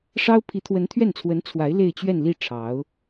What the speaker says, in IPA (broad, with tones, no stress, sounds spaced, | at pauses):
ʂ ɑ˥ ʊ̯ pʰ i˧˥ t̪ʰ w ə˧˥ n t̪ʰ ɥ ɛ˥˩ n t͡sʰ w ə˧˥ n t͡sʰ w a˧˥ ɪ̯ l e˥˧ ɪ̯ t͡ɕ ɥ ɛ˥˧ n l i˥˩ ʈ͡ʂʰ ɑ˧˥ ʊ̯